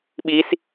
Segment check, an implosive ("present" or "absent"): present